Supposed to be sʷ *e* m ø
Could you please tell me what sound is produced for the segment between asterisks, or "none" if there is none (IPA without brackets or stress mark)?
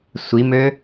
i